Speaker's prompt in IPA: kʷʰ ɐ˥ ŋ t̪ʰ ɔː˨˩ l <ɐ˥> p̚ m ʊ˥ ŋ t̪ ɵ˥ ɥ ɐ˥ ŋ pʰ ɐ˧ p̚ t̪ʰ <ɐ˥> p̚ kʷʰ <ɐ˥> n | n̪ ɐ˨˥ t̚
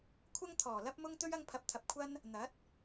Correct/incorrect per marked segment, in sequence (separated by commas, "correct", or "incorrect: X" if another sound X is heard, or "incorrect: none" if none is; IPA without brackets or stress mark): correct, incorrect: ɐ˧, correct